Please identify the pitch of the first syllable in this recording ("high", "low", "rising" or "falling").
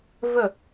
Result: falling